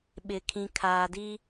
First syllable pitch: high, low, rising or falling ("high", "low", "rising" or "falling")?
low